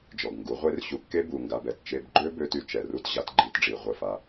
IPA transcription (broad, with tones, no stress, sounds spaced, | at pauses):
d͡ʒ ɔ˨ ɡ ŋ ɡ u˨˦ ʁʷ e˦ r ɕ u˧ kː e˦ b u˨ ŋ ɡ a˧ b ɛ˦˨ t t͡ʃ e˧ b ɡ͡ǃ ø˦ b ø˦ t y˧ t͡ʃ ɛ˨ r u˦ t ʑ a˨˦ t ɡ͡ǃ i˧ t ɖ͡ʐ i˨ ʁʷ ə˦˨ f a˦